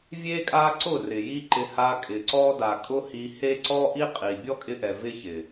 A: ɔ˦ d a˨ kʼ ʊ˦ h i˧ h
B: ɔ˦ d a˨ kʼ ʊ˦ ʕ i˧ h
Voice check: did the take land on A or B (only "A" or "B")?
A